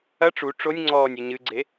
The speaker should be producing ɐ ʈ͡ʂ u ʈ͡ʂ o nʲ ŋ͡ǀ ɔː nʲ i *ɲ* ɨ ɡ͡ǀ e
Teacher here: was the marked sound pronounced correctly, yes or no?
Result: yes